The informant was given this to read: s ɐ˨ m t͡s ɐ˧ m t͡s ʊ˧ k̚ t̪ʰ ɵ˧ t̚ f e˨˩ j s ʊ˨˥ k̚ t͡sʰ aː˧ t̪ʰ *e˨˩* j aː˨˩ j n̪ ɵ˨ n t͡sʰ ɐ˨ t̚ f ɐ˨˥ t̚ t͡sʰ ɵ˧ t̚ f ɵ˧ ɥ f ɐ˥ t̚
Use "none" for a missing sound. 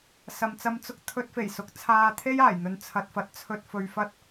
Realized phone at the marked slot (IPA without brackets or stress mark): e˥